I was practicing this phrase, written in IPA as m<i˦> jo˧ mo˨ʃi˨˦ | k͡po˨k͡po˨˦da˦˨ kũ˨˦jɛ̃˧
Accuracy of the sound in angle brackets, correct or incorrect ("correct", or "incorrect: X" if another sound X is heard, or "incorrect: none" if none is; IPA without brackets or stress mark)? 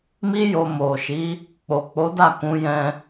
correct